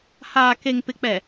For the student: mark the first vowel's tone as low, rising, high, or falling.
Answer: low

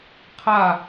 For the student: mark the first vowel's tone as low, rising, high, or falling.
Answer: falling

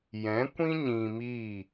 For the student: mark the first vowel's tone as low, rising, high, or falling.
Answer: rising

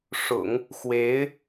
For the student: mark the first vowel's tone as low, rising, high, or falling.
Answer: low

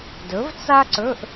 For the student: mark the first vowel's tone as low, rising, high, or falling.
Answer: rising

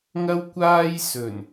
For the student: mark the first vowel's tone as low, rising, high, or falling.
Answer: high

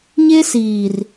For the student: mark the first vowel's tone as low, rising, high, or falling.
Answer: high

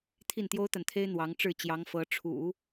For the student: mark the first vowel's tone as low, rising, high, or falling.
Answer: falling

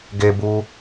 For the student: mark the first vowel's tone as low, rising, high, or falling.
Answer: low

